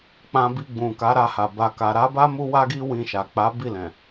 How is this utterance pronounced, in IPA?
k͡p ã˧ b i˧ ɡ͡b ũ˨ k a˨˦ ɾ a˧ h a˨ b a˨ k a˨ ɾ a˨˦ b a˦ m u˦ w a˦ ɡ i˦ w ĩ˧ ʃ a˨ k͡p a˨˦ b i˦˨ l ɛ̃˨

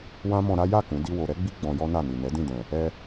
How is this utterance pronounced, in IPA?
w ã˦ m ɔ̃˧ ɾ a˦ j a˦˨ k ũ˨˦ d i˦ w o˧ ɾ ɛ˦ ɡ͡b i˦ ɡ͡b ɔ̃˧ j ɔ˦ n a˦˨ n i˨ n ɛ˨˦ d ĩ˦˨ d ɛ̃˨ | ɛ˧

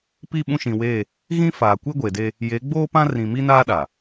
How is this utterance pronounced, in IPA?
p i˦˨ ɓ ũ˦˨ ʃ ĩ˨ w eː˦˨ | ɣ ĩ˦ f aː˨ kʷ e˦ ɡʷ e˨ d e˦ | j e˨˦ ɡ͡b oː˦ p ã˦ r ĩ˨ m i˦ n aː˦ ɗ a˨

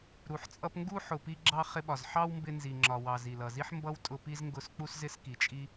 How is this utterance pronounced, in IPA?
ɾ u˨ ħ t͡sʼ ʌ˦ p ŋ ɡ u˦ ħ ʊ˨ p i˧ ɡ͡ǁ ɑ˧ χ ɪ˧ ɓ ɒ˨ z ħ ɑ˦ w m b ɪ˧ n z i˨ ŋ͡ǁ ɒ˨ w ɑ˨ z i˨ l ʌ˨ z i˦ ħ m b ʌ˦ w tʼ ʊ˧ p i˦ z ŋ ɡ ʊ˦˨ s k͡p u˦ s z ɪ˦ s k i˨ t͡ʃʼ i˦

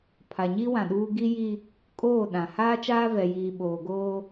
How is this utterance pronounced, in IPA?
pʰ a˨ ɲ i˦ w ã˨ ɗ uː˦ ɡ i˦ j i˦ | kʼ oː˦˨ ɗ ã˨ h aː˦ t͡ʃ aː˦ v ɛ˨ j iː˨ ɓ oː˨ ɡ oː˦

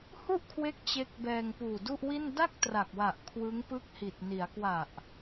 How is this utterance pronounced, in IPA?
h u˥˩ ʔ kʰ w e˦˥ k̚ t͡ɕ e˦˥ k̚ b ɛː˧ ŋ p uː˨˩ d u˥˩ ʔ w i˥˩ n d a˥˩ k̚ t r a˨˩ k̚ w a˨˩ ʔ kʰ w ɯ˦˥ ŋ p ɯ˥˩ k̚ h i˨˩ t̚ n i˩˦ a̯ k w a˨˩ ʔ

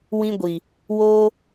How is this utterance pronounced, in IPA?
w ĩ˧ ɡʷ i˨ | w oː˧

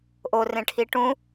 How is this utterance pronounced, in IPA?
ʔ o r ẽ ʈʰ i ʈ ũ

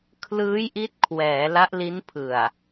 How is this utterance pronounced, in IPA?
kʰ l ɯː˦˥ j ʔ i˦˥ t̚ kʰ w ɛː˩˦ l a˦˥ ʔ l i˦˥ n pʰ ɯ˨˩ a̯

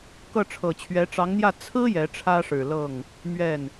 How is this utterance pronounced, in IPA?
k ɤ˥˩ ʈ͡ʂʰ ɤ˨˩ t͡ɕʰ ɥ ɛ˧˥ ʈ͡ʂ ɑ˧˥ ŋ n̪ j ä˥˩ t͡sʰ ɹ̩˥ j ɛ˧˥ ʈ͡ʂʰ ä˥ ʂ ɻ̩˨˩ l ɤ˥˩ ŋ | m ɥ ɛ˥˩ n

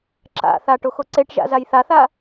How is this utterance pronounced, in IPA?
ǁ a̰ θ a ʈ o x o ǀ e ʈ ʒ a̰ z a j θ a θ a

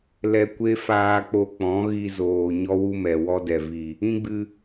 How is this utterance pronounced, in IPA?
l ɛ˧ kʷ e˦ f aː˧ k͡p o˧ k͡p ɔ̃˨˦ ɣ i˧ z oː˨ ɲ ɔ˦ w u˦ m ɛ˨ w ɔ˦ d ɛ˨ v i˨ | ĩ˦ ɡ͡b ɨ˧

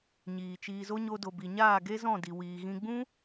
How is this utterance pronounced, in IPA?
ɲ iː˨ t͡ʃ iː˧ z o˦ ɲ o˧ d o˨ b i˨ ɲ aː˦˨ ɡ e˦ z ɔ̃˦˨ d i˨ w iː˨ ɣ ĩ˧ ɡ͡b ũ˦

